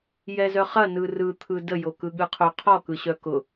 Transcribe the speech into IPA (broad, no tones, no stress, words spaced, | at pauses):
jɛzœχɐ nɯrɯ t̪ʰɯdə jokɯɠɯqʰo qʰɔ kɯɕœkʊ